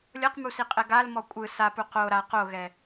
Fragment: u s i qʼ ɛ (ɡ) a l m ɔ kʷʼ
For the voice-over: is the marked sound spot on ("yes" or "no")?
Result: yes